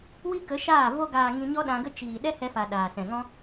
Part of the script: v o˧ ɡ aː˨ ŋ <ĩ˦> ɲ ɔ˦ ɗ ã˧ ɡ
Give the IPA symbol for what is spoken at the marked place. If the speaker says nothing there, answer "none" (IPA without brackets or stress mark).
ĩ˧